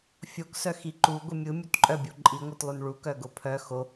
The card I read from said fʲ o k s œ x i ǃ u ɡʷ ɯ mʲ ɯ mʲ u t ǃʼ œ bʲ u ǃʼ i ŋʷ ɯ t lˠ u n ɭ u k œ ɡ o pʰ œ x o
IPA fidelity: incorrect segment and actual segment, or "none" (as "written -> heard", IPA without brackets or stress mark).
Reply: none